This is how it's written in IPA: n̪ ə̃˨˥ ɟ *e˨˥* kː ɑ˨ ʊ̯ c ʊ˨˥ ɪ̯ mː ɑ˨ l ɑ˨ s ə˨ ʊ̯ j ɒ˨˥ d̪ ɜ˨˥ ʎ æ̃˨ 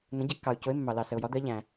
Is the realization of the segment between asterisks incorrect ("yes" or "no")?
yes